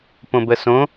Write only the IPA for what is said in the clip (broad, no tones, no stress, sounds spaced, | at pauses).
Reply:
p õ b ə s õ